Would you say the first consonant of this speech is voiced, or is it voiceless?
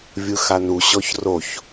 voiced